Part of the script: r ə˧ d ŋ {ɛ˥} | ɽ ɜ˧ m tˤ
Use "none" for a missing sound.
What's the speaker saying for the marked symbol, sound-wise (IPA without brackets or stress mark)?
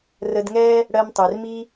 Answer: ɛ˥